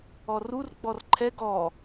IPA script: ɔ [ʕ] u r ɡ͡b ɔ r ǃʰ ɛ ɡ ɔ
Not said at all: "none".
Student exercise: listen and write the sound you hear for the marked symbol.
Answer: r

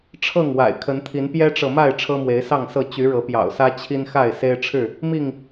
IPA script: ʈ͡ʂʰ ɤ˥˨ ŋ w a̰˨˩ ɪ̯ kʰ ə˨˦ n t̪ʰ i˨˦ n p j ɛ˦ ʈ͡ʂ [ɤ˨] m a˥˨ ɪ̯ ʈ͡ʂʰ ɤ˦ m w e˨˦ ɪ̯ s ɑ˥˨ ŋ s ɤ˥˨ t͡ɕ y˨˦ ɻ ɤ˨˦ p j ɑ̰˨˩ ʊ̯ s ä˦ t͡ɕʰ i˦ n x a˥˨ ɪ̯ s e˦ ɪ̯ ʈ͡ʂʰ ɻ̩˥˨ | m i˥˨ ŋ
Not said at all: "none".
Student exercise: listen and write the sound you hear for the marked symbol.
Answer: ɤ˨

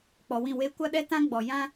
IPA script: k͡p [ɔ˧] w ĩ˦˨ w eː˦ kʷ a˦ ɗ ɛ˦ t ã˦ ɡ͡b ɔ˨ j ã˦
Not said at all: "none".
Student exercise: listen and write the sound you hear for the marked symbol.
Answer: ɔ˨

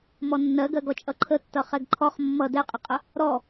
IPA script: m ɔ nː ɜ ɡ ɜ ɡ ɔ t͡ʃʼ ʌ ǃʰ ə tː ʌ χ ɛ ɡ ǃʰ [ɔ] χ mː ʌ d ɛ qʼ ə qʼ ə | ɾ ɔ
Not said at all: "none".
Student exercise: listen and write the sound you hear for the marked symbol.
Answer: ɔ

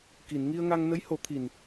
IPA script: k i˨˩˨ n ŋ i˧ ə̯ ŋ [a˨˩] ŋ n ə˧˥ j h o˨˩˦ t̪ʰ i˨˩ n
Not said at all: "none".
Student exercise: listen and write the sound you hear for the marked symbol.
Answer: a˧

